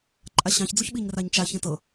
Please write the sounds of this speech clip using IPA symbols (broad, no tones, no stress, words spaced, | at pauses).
ǃʼaɕɑ̃çd͡zuç ɓiɲraɲt͡ʃaçẽ tɤ